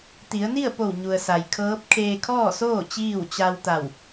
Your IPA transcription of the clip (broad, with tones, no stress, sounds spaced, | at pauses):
t̪ i˩˧ ə̯ n i˥˨ ə̯ p o˧˩ w ɲ u˩ ə̯ s a˩ j kʰ ɤː˧˥ p̚ kʰ eː˧ kʰ ɔː˥˨ s oː˥˨ t͡ɕ iː˥˨ w t͡ɕ a˧ w t̪ a˧˩ w